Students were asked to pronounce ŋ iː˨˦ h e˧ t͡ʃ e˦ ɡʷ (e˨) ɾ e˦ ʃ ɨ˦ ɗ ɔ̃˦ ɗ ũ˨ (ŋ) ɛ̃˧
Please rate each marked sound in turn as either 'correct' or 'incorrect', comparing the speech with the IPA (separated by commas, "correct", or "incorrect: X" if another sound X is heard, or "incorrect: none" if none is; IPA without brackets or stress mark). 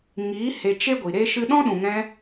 incorrect: i˨, correct